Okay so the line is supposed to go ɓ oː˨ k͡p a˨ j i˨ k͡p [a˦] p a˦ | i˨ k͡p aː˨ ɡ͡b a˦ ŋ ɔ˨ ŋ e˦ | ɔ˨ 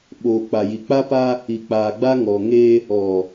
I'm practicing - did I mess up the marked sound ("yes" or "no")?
no